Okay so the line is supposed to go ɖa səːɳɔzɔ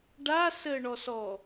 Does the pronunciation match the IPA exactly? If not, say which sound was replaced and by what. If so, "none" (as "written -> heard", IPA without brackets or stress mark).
z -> s